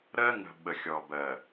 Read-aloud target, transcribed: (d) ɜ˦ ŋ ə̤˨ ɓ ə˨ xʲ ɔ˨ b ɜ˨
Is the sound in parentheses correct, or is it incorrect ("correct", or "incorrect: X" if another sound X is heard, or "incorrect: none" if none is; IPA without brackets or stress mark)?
incorrect: ɾ